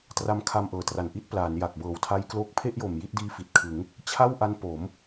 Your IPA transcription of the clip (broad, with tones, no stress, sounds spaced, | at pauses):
t r a˧ m kʰ a˧ m ʔ ɤː˨˩ t r a˨˩ n ʔ i˥˩ t̚ p l aː˩˦ n j a˨˩ k̚ b ɤː˨˩ w tʰ a˦˥ j k l oː˦˥ k̚ pʰ e˥˩ ʔ j o˨˩ m j i˥˩ t̚ d iː˦˥ f i˨˩ t̚ kʰ ɯ˩˦ ŋ | t͡ɕʰ a˥˩ w ʔ a˦˥ n p o˩˦ m